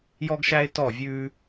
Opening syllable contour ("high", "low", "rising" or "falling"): high